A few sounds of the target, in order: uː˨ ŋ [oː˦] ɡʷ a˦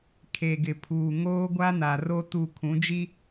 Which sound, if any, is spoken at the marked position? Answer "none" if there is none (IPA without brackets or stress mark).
oː˦